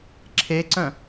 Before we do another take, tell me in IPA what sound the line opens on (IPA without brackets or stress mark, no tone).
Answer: ǁʰ